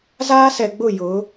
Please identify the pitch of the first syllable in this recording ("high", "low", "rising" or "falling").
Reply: high